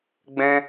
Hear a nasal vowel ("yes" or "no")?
yes